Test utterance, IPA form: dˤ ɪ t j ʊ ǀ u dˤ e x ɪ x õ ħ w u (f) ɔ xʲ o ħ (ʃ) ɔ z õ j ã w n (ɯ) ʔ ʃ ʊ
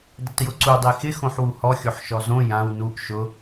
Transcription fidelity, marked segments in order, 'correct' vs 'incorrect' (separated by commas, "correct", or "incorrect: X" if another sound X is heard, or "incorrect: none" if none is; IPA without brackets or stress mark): incorrect: h, correct, incorrect: u